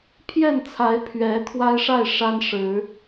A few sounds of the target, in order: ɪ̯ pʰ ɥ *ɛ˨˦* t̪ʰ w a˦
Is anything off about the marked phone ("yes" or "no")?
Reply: no